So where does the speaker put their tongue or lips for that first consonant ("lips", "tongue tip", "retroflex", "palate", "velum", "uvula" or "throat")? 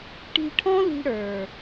retroflex